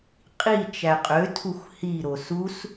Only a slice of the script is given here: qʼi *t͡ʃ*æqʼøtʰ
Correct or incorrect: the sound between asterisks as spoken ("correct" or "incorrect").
correct